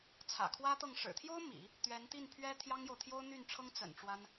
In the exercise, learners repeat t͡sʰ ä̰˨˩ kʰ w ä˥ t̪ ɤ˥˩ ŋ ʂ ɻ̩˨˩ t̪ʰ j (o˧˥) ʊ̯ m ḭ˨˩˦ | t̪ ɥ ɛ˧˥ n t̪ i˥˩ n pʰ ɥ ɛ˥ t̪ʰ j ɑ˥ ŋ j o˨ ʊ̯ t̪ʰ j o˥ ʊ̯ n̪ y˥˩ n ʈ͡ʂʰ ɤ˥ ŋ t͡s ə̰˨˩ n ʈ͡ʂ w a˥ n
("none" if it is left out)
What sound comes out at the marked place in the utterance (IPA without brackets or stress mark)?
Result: o˥